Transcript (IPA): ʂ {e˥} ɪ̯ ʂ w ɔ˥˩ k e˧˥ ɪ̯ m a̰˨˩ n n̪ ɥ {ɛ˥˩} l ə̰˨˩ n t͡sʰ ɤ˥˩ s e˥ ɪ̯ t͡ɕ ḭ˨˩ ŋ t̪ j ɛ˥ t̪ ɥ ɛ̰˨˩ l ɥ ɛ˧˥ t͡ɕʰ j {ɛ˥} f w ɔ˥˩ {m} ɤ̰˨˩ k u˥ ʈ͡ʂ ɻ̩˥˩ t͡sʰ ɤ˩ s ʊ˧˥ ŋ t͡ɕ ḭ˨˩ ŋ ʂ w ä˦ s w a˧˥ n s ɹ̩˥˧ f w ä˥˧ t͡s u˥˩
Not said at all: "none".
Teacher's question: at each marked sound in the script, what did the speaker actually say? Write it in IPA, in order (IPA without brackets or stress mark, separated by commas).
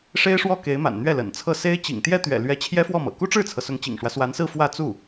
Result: e˥, ɛ˥˩, ɛ˥, m